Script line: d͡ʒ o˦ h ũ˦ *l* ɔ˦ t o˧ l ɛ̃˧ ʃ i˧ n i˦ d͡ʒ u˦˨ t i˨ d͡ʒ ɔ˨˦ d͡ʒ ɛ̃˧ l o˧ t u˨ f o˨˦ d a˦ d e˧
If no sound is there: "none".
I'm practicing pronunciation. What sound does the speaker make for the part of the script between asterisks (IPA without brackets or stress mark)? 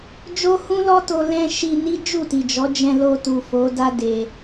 l